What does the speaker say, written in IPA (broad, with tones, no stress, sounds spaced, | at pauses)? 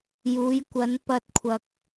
j uː˨˧ j kʷ ɐ˨˧ n p ɐ˧ t̚ kʷʰ ɐ˨ k̚